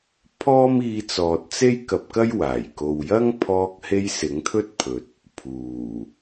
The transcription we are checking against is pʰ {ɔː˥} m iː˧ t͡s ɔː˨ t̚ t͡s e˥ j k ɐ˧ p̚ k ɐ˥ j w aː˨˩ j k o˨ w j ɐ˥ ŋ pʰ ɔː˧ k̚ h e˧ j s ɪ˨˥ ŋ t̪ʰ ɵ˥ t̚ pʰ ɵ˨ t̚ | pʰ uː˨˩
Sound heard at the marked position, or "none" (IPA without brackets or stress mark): ɔː˥